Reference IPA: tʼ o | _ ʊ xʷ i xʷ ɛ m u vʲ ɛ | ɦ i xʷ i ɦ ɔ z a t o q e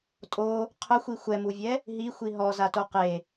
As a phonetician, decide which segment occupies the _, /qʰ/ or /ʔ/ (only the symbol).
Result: qʰ